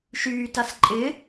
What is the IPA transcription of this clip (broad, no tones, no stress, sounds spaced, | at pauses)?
ʃ yː t a s ǃʼ ɪ